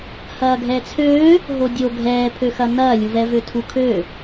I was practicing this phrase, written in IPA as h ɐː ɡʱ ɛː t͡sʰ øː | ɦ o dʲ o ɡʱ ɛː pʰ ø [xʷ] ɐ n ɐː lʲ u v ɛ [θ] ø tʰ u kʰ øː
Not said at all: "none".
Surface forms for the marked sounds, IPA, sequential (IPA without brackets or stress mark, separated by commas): x, v